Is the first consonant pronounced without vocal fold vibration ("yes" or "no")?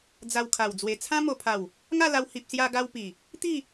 no